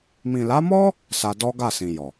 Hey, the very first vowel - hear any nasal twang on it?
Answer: yes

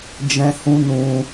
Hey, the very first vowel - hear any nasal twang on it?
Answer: yes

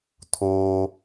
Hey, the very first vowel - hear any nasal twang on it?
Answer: no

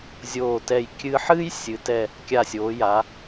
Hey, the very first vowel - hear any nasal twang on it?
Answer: no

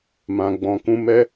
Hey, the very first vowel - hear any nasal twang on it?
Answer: yes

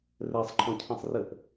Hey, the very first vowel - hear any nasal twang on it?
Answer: no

